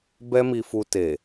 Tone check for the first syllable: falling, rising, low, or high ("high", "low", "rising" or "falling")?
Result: high